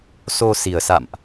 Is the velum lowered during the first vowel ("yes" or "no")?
no